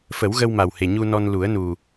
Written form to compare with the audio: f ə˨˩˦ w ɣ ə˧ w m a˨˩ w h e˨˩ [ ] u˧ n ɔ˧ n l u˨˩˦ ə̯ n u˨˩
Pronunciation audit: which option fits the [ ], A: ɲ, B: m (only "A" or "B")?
A